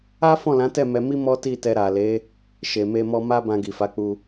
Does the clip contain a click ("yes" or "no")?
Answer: no